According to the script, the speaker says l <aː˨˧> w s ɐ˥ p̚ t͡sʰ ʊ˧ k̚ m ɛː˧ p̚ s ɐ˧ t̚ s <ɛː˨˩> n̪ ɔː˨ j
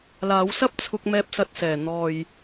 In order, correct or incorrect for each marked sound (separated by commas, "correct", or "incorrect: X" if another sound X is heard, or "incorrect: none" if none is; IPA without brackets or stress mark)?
correct, correct